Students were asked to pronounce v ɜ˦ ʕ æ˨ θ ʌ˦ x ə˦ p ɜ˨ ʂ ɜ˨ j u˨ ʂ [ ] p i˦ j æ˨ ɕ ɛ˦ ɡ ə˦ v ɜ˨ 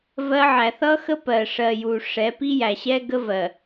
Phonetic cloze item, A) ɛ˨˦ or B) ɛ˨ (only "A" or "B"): A